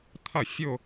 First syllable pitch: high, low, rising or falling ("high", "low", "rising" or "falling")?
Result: falling